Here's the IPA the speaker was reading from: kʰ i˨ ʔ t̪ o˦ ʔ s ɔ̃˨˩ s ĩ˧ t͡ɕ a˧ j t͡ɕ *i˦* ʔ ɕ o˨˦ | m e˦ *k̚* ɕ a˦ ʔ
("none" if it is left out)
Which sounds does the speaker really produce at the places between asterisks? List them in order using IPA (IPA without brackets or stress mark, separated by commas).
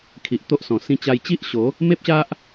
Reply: i˦, p̚